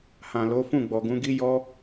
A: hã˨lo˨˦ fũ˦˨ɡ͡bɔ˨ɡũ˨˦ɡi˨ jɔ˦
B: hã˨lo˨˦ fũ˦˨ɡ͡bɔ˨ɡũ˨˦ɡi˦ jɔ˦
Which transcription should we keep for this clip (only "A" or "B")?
B